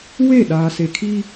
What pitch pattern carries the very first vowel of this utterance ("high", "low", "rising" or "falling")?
falling